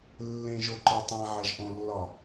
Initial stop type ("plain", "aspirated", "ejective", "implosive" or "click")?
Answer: click